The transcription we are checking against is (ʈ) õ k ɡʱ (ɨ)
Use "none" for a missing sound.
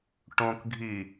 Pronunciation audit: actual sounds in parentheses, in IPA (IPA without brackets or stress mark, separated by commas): ʈ, i